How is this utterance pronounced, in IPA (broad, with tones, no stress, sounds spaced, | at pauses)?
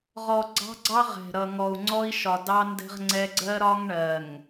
ʁ ɔ˨ ɡ͡ǀ ɑ̤˦ ɡ͡ǀ ɑ˦ ʁ ɛ̤˨ ɾ ʌ˨ ŋ ɔ˨ u̯ ŋ͡ǀ ɔ˦ i̯ ʃ ɒ˨ d ɑ˦ n d ɛ̤˦ ʁ ŋ͡ǀ ɛ˦ ɡ͡ǀ ɜ˦ ɾ ɒ˦ ŋ ɳ ɜ˨ ŋ